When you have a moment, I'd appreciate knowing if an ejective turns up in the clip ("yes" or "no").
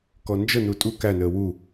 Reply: yes